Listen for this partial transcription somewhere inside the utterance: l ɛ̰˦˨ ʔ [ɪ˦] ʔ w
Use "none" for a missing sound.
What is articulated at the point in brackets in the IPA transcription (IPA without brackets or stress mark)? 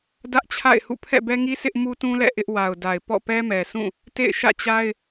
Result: ɪ˦